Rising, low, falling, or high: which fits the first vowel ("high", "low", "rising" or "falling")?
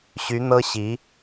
rising